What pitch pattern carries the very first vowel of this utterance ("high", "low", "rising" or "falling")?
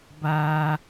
high